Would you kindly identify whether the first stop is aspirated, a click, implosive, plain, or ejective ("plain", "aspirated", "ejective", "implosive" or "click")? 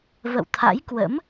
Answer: aspirated